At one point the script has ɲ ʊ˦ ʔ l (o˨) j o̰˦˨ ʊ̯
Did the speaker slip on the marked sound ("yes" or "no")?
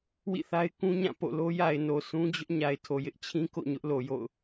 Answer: no